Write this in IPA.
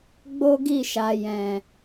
ɡ͡b o˦ ɡ i˦˨ ʃ a˨ j ɛ̃˨

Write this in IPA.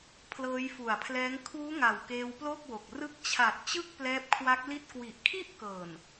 pʰ l ɤː˦˥ j f u˨˩ a̯ pʰ l ɛː˦˥ ŋ kʰ uː˦˥ ŋ a˨˩ w k eː˧ w p l o˥˩ k̚ w o˨˩ k̚ r ɯ˦˥ k̚ t͡ɕʰ a˨˩ t̚ t͡ɕ ɯ˥˩ k̚ p l ɛː˦˥ p̚ kʰ w a˦˥ k̚ l i˥˩ t̚ k w i˨˩ ʔ kʰ i˥˩ ʔ k ɤː˨˩ n

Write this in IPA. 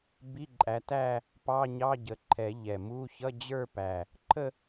b i˧˥˧ ǃʼ æ˨˦ t æ˥˧ | p ɑ˧˥˧ ɲ ɑ˧˥˧ ɟ ə˨˩ ǃʰ ɛ˨˩˦ ʎ ɛ˨˩ m u˧˥˧ ç ʌ˧˥˧ d͡ʑ ə˞˥˧ p æ˨˩ | ǃʰ ə˥˧

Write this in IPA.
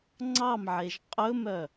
ŋ͡ǀ ɑ m ʕ e ʒ qʼ ɵ m œ

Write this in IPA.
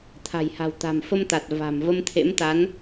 t̪ʰ a̤˨˩ j h a̤˨˩ w t̪ a̤˨˩ m f ə˧ m t̪ a˨˩ t̚ v a̤˨˩ m v ə˧ m t̪ʰ ḛ˧˥ m t̪ a˨˦ n

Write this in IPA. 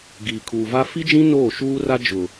ɡ iː˨ kʰ uː˨ v a˦ f i˦ d͡ʒ ĩ˦ n oː˦˨ ʃ uː˦ r a˦ d͡ʒ ʊ˨

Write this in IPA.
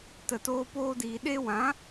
t ə˨ t oː˧ p oː˧ d iː˨ ɗ e˧ w ã˨˦

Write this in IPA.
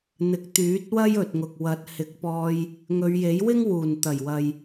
n̪ ɪ˨ k̚ t̪ yː˨˥ t̚ w ɐ˥ j ɵ˨ t̚ ŋ ʊ˨ k̚ w ɐ˨˥ t̚ h ɪ˨˥ k̚ p ɔː˧ j | ŋ ɵ˨˧ ɥ j e˨˥ j w ɪ˥ ŋ w uː˨˩ n t̪ ɐ˨˩ j w ɐ˨ j

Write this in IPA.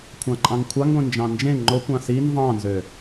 kʷʰ ɑ̃ ǃʼ ɑ̃ ŋ kʷʰ ɑ ŋ ɡʷ ẽ n d͡ʒ ɑ̃ n d͡ʒ ẽ ŋ͡ǃ o kʷ ɑ̃ s i n v ɑ̃ n z ø

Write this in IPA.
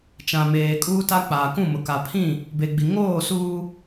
t͡ʃ ã˨ m eː˨ kʼ uː˦ t a˦ k͡p aː˨ k ũ˦˨ m ʊ˨ k a˨ pʰ ĩ˦˨ | b e˨ ɡ͡b i˨ ŋ oː˦˨ s uː˦

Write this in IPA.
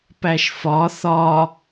p æ ʃ f ɒ θ ɒ

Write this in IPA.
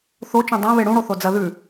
θ o t͡ʃ ũ dˤ ã β e ɽ ũ ɽ o θ o d͡z ɐ ð ʉ

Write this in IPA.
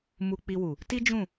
m u˧ k͡p i˧ w u˨ | t i˦ d͡ʒ ũ˦˨

